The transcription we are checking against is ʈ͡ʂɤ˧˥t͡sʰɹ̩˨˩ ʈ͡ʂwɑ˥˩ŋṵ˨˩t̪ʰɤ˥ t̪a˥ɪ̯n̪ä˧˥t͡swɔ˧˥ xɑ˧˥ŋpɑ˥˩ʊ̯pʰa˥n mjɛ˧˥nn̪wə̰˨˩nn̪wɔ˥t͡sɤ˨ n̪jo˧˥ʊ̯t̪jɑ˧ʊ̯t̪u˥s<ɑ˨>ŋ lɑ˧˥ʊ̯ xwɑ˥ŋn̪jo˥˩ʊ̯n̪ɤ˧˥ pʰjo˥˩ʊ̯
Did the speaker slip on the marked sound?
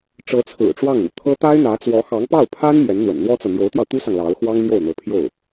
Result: no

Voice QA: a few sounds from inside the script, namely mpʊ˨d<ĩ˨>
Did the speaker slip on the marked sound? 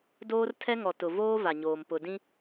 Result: yes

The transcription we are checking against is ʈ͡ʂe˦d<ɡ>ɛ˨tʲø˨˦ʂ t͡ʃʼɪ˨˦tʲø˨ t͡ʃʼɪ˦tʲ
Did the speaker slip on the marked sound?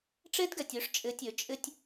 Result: no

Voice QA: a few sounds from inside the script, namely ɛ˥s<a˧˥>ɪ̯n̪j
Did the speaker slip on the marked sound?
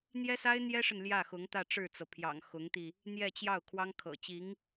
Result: yes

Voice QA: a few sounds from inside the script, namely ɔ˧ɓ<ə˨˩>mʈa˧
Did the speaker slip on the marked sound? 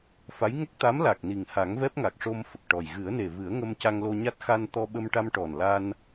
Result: yes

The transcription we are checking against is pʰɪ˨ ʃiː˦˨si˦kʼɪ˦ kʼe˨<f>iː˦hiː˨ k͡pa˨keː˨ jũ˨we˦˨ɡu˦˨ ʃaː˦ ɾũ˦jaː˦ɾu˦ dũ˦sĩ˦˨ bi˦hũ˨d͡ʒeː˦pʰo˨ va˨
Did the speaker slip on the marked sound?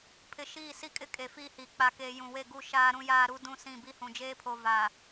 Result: no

